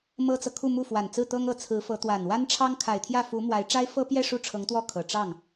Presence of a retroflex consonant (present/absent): present